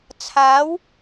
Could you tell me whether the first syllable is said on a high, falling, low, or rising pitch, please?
rising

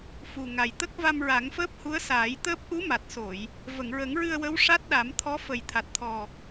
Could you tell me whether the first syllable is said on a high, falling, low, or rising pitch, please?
low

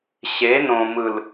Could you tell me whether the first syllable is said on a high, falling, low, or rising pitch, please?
rising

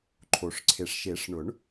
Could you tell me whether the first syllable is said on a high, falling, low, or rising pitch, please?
low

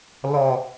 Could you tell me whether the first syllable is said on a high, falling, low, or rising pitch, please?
low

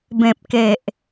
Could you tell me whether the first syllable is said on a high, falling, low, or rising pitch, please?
low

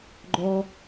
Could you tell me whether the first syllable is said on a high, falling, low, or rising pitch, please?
low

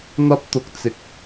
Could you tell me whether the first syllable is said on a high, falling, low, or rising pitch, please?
high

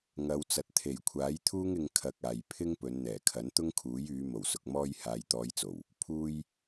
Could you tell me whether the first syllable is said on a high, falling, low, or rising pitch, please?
low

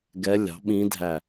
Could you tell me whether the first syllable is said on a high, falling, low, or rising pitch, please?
rising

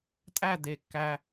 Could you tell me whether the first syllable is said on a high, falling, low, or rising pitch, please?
falling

